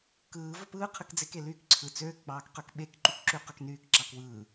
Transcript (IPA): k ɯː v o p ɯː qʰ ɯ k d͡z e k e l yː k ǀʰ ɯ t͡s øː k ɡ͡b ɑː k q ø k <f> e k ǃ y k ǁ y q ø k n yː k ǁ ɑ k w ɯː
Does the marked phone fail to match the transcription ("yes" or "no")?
yes